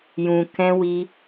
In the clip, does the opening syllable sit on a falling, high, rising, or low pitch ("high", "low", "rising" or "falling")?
low